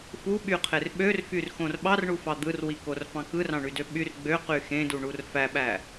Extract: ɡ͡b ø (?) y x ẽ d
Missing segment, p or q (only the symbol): q